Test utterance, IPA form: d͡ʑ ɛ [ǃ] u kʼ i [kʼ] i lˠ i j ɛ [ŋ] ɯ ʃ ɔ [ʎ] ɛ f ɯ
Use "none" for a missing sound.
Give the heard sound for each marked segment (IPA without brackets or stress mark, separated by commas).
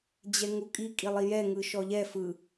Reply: ŋ, kʼ, ŋ, ʎ